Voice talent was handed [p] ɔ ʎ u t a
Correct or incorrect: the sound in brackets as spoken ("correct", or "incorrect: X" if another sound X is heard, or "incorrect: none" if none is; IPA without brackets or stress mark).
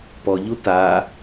correct